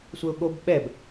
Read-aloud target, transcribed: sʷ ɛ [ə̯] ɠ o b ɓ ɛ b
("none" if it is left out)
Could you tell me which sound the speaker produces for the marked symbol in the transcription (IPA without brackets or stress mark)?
ʊ̯